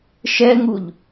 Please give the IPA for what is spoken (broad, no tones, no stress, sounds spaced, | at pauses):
ʃ ɛ ŋ u ʎ